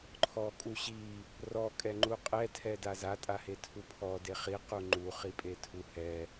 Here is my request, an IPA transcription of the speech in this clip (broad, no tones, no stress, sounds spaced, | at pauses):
ǃʰ ɔ kʼ u ɕ i | r ɔ kʼ ɛ ŋ͡ǃ u qʼ ɛ tʰ ɛ d a z a tʼ a h e tʰ u pʰ ɔ d e χ i q u ŋ͡ǃ u χ i pʼ e tʰ u h ɛ